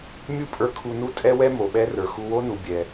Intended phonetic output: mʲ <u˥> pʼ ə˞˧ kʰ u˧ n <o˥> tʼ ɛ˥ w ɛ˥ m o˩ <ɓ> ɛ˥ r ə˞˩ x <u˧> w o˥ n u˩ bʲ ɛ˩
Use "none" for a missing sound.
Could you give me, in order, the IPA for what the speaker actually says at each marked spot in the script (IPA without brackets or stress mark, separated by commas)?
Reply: u˥, u˥, ɓ, u˧